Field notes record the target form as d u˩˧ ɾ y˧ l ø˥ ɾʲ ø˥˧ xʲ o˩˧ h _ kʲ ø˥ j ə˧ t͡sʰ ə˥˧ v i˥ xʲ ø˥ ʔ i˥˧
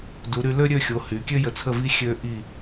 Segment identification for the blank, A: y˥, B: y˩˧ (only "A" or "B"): B